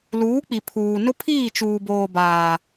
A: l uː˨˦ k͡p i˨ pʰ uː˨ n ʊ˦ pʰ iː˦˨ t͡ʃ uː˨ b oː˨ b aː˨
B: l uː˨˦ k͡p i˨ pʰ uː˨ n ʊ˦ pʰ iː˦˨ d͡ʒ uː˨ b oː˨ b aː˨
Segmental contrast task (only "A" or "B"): A